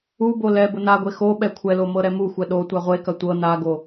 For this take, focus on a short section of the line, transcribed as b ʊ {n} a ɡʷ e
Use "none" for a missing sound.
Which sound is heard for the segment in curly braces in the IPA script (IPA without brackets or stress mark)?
n